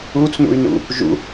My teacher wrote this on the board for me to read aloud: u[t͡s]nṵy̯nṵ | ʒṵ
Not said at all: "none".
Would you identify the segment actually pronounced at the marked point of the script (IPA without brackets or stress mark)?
t͡s